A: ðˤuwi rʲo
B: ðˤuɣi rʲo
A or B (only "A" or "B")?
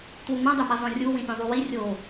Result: A